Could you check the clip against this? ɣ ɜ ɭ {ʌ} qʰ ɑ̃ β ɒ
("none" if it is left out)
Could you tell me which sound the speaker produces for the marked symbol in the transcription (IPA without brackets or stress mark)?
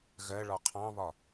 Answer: ɒ